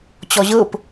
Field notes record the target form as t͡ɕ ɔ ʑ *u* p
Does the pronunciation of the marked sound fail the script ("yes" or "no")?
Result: yes